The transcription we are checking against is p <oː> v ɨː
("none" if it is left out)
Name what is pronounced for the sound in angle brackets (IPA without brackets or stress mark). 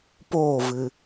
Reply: oː